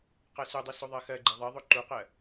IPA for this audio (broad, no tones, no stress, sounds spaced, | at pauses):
q ɜ s u dˤ i s o ðˤ ɜ x ɜ ɡ͡ǃ i ðˤ ɜ ðˤ o ǃ u q ɜ